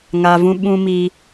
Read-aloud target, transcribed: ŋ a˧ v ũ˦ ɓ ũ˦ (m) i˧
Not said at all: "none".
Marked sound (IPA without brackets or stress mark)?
m